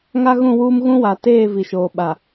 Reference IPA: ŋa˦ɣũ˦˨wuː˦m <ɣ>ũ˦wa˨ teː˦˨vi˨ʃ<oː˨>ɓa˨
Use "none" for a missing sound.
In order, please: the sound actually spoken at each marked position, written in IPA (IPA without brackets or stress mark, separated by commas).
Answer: ɣ, oː˨